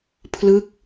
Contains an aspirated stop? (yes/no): yes